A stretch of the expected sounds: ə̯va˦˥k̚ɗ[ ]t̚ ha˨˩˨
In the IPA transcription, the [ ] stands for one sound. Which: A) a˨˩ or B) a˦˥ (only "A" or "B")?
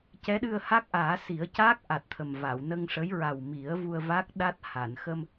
B